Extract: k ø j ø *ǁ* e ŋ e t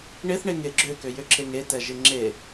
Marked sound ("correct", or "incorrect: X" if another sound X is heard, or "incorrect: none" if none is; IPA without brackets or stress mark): correct